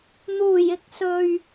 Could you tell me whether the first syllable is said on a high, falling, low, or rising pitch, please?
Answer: low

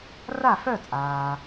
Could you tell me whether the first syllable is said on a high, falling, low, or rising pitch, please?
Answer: falling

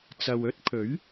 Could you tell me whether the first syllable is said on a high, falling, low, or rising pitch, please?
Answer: low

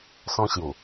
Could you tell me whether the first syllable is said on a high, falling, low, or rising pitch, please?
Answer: high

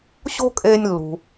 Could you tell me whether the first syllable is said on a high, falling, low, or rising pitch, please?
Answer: high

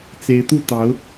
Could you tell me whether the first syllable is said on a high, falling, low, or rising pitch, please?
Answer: rising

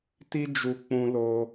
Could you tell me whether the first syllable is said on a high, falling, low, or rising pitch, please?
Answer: high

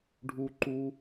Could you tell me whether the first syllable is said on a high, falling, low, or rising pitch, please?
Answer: high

